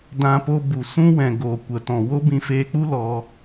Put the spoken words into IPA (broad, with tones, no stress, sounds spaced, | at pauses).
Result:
d ã˧ p o˧ b u˨ s ũ˦ w ɛ̃˨ ɡ oː˨ kʷ ə˨ t ɔ̃˨ w o˦ b ĩ˧ f eː˧ k͡p u˦ l ɔ˧